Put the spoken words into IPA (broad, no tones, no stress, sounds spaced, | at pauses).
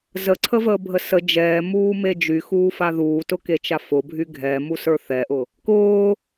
z ə ǀʰ ə v əː bʱ ə s ə d͡ʒ ɛː m uː m e d͡ʒ y x uː f a ð uː t ʊ k e t͡ʃ a f ʊ bʱ y ɡʱ ɛ m u s ə˞ θ ɛ ʔ ʊ | k ʊː